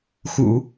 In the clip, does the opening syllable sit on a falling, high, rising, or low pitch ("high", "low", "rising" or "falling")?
low